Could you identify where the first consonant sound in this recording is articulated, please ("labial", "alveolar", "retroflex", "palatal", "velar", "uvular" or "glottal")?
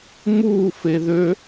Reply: labial